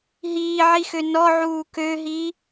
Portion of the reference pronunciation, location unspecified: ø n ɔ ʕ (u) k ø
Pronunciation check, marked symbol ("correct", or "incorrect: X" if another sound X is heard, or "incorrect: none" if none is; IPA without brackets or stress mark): incorrect: uː